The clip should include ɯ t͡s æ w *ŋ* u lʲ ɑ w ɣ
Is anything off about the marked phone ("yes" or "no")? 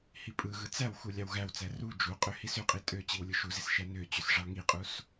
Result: yes